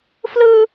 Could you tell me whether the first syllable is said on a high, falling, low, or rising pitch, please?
high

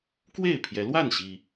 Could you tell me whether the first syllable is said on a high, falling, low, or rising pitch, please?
falling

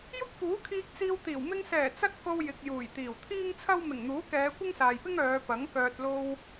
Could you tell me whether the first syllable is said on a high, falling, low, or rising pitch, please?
high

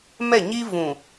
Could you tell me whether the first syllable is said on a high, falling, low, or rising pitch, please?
falling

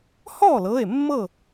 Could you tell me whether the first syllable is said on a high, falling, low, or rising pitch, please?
falling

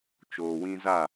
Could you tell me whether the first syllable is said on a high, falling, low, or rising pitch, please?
low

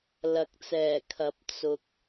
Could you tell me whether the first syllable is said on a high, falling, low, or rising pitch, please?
rising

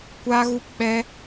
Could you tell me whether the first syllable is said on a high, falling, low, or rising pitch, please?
high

